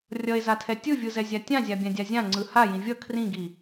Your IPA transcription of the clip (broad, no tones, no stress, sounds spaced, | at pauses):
rʲ ʌ e̯ z a tʰ ɛ tʲ ɯ vʲ ɯ z ɛ zʲ a tʲ ã zʲ a bʲ ã dʲ a zʲ ã ŋ͡ǀ ɯ h a j ĩ vʲ ʌ kʰ r ĩ ɡ i